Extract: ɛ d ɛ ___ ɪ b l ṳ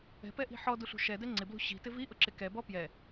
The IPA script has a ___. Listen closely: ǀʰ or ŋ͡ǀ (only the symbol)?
ŋ͡ǀ